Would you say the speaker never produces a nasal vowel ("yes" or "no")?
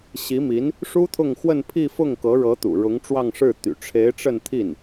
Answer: yes